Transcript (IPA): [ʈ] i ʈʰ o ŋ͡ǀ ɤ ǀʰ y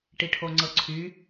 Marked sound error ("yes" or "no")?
no